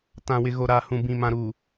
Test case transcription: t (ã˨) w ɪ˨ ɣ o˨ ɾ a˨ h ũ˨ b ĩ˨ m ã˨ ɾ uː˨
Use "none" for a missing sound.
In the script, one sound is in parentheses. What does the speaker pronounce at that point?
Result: ã˨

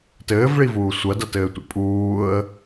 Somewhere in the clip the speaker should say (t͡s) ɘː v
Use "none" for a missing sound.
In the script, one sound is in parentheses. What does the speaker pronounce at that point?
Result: t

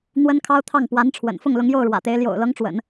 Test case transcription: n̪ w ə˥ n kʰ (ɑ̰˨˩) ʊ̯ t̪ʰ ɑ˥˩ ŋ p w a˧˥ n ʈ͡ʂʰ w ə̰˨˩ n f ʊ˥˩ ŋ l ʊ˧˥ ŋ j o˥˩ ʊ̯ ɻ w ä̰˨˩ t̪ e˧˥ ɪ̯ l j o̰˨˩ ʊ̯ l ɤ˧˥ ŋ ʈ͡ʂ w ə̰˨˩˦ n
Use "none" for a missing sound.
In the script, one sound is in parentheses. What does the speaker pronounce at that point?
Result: ɑ˥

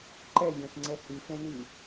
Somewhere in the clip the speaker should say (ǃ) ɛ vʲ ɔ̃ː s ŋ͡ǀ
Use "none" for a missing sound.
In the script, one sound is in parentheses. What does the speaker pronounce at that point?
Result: ǃ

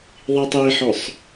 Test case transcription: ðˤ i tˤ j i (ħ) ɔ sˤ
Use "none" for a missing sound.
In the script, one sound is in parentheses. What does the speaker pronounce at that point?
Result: ħ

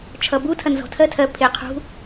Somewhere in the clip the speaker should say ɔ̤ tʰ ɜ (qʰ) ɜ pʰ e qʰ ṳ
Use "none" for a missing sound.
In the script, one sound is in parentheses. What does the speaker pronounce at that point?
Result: tʰ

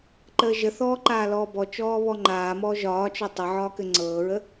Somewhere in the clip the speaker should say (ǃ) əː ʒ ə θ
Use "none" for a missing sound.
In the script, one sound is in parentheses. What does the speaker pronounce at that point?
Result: ǃ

